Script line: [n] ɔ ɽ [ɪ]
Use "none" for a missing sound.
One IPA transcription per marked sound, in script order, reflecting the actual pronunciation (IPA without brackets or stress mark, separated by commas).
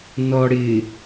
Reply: n, ɪ